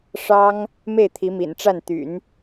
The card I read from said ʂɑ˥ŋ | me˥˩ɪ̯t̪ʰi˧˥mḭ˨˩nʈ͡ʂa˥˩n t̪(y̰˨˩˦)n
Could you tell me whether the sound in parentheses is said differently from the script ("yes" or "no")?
no